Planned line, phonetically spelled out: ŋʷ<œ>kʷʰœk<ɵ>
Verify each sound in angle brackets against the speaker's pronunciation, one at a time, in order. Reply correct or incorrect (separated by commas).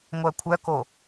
correct, incorrect